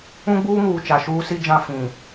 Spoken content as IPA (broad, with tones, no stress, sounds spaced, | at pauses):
ũ˦ ɡ͡b uː˦ ŋ uː˨ t͡ʃ a˨ ʃ uː˦ s i˦ d͡ʒ ã˦˨ f ĩ˨